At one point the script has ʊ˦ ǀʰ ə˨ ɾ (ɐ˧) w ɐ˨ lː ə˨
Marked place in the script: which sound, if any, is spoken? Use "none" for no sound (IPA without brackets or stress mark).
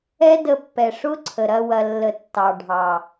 ɐ˧